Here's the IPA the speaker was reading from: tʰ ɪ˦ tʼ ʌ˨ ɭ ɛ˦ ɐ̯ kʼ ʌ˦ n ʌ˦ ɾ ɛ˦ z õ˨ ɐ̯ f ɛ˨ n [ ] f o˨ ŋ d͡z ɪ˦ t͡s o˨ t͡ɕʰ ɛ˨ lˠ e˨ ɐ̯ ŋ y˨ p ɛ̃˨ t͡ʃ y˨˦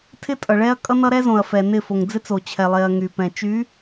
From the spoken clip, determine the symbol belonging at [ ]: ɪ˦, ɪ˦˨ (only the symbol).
ɪ˦˨